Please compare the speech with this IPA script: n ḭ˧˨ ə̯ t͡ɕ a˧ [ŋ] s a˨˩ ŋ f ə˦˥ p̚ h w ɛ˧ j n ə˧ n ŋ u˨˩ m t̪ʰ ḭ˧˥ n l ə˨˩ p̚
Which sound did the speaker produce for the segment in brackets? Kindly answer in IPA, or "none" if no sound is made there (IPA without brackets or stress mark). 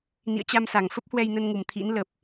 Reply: m